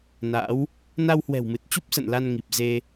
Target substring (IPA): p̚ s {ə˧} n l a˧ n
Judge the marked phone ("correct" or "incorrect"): incorrect